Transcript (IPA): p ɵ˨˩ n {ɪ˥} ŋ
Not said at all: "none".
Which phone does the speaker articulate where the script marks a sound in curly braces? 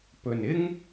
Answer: ɪ˥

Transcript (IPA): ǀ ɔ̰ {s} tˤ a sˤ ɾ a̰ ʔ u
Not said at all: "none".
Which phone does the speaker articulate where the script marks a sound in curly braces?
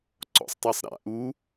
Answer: sˤ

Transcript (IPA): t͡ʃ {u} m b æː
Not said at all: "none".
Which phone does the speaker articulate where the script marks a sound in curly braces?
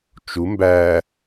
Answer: u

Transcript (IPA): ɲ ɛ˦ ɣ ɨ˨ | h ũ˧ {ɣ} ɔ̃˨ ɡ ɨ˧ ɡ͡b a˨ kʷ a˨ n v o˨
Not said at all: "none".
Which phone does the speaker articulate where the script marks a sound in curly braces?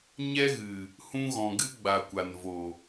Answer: ɣ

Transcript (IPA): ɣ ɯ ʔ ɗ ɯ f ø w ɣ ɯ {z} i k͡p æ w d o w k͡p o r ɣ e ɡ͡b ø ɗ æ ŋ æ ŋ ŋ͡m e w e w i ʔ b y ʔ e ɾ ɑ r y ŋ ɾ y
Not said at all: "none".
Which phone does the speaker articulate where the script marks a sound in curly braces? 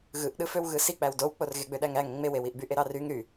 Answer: s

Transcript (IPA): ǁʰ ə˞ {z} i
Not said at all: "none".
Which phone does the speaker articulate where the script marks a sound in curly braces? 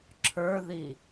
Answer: ð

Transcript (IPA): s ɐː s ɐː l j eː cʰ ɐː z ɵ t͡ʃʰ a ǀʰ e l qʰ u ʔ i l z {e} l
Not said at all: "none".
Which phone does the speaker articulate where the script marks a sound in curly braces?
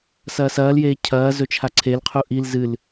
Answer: ɨ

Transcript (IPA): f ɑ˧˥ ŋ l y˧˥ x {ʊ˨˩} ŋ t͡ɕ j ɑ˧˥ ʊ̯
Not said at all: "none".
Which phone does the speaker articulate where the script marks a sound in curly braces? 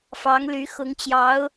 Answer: ʊ˧˥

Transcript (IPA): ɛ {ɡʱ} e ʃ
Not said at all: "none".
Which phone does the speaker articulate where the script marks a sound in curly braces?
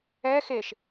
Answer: x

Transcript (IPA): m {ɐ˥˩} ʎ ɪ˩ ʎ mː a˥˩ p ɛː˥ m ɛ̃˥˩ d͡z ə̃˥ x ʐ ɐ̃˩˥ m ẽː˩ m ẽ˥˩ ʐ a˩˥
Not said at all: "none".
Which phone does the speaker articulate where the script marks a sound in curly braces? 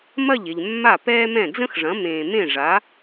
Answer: ɐ˥˩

